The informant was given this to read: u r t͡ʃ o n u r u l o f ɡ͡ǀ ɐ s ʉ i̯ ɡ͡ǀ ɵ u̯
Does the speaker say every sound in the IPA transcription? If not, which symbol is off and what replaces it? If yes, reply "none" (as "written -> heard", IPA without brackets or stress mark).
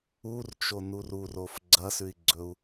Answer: l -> r